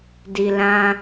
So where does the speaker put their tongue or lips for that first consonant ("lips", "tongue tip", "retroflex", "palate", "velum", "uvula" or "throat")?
tongue tip